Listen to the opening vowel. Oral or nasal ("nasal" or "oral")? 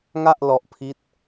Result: oral